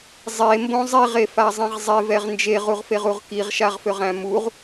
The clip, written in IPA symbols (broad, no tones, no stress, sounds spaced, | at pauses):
zˤ e m b õ zˤ i ʁ e f a zˤ ĩ ʁ zˤ e v ɛ ʁ n d͡ʒ e ʁ u ʁ f e ʁ u ʁ k i ʁ ʃ a ʁ f ø ʁ æ̃ m u ʁ